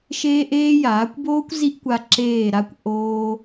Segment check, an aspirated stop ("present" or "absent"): absent